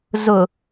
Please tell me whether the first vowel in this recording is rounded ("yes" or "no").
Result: yes